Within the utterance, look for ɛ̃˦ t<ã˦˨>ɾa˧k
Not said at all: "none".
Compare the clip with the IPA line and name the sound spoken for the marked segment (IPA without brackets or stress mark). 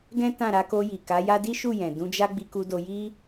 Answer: ã˦˨